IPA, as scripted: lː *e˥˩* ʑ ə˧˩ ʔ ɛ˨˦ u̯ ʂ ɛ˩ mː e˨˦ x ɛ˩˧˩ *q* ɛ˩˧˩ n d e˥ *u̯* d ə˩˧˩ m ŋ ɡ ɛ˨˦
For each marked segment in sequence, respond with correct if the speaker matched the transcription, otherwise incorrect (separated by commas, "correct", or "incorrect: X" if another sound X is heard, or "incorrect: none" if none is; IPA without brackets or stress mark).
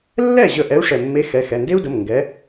incorrect: ɛ˥˩, incorrect: x, correct